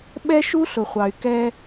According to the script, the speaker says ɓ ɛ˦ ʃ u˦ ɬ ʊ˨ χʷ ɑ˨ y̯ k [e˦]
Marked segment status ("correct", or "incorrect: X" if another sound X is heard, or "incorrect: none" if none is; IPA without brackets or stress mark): incorrect: ɛ˦